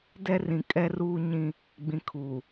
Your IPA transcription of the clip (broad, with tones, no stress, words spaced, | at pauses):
dɛ˦rĩ˨kʼɛ˦ ruː˦ɲĩ˦ | ɡ͡bĩ˨kʰu˨